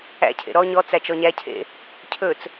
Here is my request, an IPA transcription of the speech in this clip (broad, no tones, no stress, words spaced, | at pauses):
æ̰cʰḛ ɾɔ ɲɔt͡sæ t͡ʃɔɲæcʰḛ | cʰɵt͡s